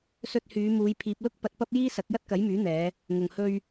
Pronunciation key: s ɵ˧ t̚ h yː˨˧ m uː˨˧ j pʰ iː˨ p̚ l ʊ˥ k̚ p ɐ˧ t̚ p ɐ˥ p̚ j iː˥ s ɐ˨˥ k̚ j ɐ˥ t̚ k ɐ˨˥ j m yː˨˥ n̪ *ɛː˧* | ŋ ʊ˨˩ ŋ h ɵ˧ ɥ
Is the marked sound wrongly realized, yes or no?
yes